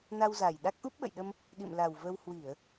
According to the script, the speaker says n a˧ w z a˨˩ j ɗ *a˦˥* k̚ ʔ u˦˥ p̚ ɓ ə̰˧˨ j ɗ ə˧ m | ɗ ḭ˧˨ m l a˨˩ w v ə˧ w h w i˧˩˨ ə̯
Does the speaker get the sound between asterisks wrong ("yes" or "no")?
no